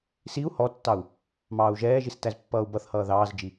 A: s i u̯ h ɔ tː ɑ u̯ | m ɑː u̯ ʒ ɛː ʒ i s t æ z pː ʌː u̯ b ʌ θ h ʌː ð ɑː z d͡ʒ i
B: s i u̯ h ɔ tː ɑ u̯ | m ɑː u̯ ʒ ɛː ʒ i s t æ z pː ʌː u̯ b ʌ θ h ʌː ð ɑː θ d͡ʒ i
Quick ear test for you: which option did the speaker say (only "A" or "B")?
A